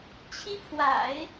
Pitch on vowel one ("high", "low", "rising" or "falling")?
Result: high